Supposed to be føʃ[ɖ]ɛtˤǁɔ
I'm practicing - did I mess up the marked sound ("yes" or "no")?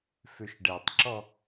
no